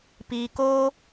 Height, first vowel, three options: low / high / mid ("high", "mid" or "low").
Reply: high